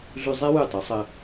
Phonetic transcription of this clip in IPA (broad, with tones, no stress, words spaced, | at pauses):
ɮʉ˧zˤe˥ wʉ˥˩tˤʌ˩˥sˤə˧